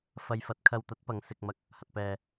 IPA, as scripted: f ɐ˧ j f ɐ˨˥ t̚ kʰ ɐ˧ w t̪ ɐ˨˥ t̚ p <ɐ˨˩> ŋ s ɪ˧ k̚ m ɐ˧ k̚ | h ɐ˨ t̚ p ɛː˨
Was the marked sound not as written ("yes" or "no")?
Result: yes